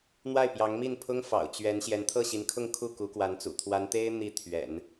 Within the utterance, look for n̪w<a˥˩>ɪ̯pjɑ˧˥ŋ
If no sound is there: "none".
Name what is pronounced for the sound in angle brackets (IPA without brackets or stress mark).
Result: a˥˩